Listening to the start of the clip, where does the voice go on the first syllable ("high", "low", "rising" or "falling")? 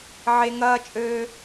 high